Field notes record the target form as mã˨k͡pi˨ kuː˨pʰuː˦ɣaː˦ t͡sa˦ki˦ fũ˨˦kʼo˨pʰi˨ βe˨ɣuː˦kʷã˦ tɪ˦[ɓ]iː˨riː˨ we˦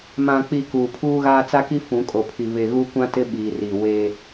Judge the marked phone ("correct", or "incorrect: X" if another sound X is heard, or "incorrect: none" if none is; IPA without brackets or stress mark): correct